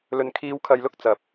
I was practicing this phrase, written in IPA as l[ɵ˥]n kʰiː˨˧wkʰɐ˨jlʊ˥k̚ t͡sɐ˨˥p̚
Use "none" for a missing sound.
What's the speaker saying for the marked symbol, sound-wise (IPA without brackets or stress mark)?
ɵ˨